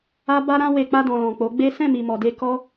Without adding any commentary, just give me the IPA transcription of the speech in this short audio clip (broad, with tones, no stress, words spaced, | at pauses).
a˦ba˦ɾã˦we˧ k͡pa˧dɔ̃˨lɔ̃˨ k͡po˨˦ ɡ͡be˦ sɛ̃˦˨mi˨mɔ˨de˧ kɔ˦